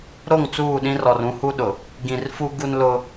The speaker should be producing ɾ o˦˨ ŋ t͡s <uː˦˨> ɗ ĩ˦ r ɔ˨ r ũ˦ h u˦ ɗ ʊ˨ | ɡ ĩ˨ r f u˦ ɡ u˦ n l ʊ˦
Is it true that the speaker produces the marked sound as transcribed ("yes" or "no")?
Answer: yes